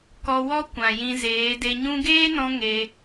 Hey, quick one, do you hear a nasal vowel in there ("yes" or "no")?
yes